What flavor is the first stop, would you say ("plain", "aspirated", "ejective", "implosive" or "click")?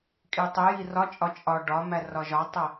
ejective